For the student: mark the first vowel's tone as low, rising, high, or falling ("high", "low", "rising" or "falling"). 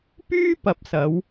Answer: high